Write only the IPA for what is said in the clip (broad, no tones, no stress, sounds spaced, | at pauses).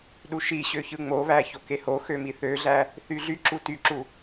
ɗ u ʃ i ɕ ø ç ɯ ŋ͡m o β æ ç o k e h o x ø m i θ ø ɮ æ | θ y ɮ y ǁ u t y ǁ u